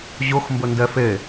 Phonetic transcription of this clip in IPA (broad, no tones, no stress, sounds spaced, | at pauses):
ʑ ʊ x m b ə n d ɛ f e